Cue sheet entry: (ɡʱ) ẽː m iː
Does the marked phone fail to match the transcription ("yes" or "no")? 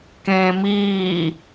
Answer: yes